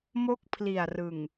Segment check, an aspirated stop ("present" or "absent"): present